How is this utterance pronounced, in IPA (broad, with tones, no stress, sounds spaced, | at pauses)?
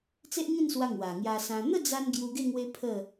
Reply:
t͡s e˦ ʔ ŋ ĩ˥˧ n s w a˧ ŋ w a˨˩ ŋ j a˧ s ã˧ n̪ ə˥˧ d͡z a˧ n ɡ j u˧ ɡ e˥˧ ŋ w e˦ pʰ ə˥˧